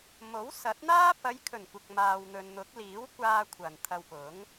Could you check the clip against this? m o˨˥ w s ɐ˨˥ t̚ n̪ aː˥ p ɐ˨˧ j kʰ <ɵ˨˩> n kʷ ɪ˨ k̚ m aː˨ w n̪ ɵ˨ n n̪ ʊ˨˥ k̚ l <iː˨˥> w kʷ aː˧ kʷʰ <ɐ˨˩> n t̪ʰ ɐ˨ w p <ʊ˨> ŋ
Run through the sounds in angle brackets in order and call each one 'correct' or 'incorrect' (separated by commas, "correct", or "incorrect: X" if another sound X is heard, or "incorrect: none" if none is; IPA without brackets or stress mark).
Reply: correct, correct, correct, incorrect: ʊ˨˥